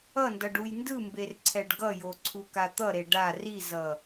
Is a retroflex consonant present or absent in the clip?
present